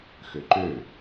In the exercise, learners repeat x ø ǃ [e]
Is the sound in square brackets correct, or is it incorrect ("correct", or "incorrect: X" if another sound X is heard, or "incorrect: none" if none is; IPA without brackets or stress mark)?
incorrect: ø